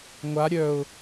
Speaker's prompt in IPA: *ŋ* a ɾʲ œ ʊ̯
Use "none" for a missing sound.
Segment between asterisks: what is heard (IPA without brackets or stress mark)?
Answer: ŋʷ